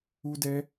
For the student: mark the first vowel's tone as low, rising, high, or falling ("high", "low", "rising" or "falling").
high